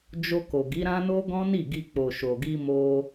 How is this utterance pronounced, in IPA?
d͡ʒo˧ko˨ɡi˨˦ɾã˦ no˦ɡɔ̃˦ni˦˨ɡi˧ k͡po˨ʃo˨ɡi˧ mo˧

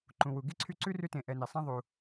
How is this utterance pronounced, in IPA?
ǃũ˨wu˨ ɡi˥ǀʰy˦ǀʉ˥ rʉ˦tẽ˨ ʔɛ˨ni˩sˤã˦ðˤu˨

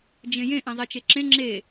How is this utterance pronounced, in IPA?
d͡ʒẽjẽ ʔɛ̃zˤet͡ʃeǁẽ ŋ͡ǁe

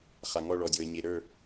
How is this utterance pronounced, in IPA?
χa˧ŋɔ˥˧ ɭɔ˧dʲo˧ə̯ ɲe˧ɾə˞˥˧

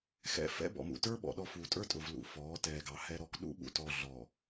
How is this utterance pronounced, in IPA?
xɛ̰˦ fɛ̰˦bɔ̰˨mṵ˨ tə˞˦ɓɔ̰˨ɗɔ˨ fuː˨ tʼə˞˦tʼʊ˨vlṵ˨ fɔː˨˦tɛː˨ɡɑ˨hɛ˦ ɾɔ˨kɗṵ˦ ɓṵ˨tɔ˨ ɮɔ˨

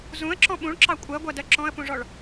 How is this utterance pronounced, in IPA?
zũə̯ǁɔ̃ ɓũɭǁɑ kʷʼɜɡʷɜdɜ ǁɔ̃ə̯pũʐɔɭ

